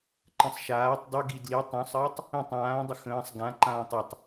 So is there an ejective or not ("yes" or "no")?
no